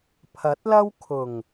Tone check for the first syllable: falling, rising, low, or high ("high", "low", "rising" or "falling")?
rising